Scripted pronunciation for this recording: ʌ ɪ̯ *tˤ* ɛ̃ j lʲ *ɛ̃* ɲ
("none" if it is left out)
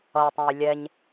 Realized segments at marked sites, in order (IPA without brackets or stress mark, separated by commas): tˤ, ɛ